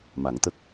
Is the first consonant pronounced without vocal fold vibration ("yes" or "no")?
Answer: no